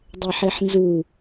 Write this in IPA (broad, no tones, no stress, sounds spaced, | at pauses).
dˤ ɛ ħ e ħ n z u